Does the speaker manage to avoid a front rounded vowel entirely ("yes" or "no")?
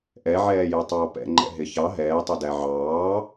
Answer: yes